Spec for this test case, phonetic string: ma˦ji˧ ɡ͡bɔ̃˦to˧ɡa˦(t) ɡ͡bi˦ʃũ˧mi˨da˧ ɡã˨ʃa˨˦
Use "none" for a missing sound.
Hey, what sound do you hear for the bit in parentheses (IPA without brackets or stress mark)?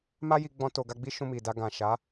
none